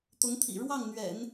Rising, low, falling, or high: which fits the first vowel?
rising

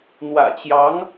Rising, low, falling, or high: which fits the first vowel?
low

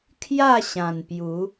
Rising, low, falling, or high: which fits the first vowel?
falling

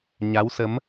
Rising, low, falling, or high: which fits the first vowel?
rising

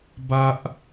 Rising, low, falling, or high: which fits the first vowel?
high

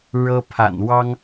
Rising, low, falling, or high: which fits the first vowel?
high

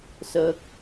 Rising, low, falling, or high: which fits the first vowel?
low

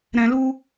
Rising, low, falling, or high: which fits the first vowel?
low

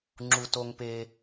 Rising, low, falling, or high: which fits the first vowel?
high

